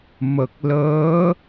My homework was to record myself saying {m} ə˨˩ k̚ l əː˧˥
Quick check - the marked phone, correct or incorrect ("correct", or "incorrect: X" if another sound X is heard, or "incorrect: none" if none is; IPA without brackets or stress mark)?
correct